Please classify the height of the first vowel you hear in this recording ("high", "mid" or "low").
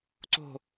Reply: mid